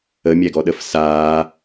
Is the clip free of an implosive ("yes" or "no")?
no